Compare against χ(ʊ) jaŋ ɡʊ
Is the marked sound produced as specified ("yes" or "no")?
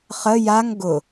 no